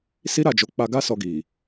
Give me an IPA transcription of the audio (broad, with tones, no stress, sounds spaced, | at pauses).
s i˦ ɾ a˦˨ d͡ʒ o˨˦ k͡p a˧ ɡ a˦ s ɔ˧ ɡ i˨